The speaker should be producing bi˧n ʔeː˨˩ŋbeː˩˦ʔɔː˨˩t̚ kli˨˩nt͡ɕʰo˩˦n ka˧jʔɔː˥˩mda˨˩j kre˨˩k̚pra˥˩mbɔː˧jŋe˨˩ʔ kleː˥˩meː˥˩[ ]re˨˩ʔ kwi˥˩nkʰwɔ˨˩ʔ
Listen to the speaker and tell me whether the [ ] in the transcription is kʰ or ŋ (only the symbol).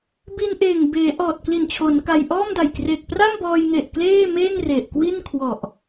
ŋ